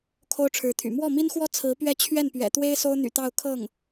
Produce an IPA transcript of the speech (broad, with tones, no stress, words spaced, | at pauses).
kʰo˥ʊ̯ʈ͡ʂʰɻ̩˧˥t̪ʰy̰˨˩ mwɔ˥˩mi˥nxwɔ˥ t͡sʰɹ̩˧˥pɥɛ˥˧ t͡ɕʰɥɛ˥˩npɥɛ̰˨˩t̪we˥ɪ̯ so˥ʊ̯n̪y̰˨˩t̪ɑ˥˧ʊ̯ kʰɤ˥˩ŋ